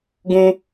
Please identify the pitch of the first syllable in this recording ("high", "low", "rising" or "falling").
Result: high